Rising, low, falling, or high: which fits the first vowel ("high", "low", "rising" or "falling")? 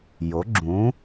rising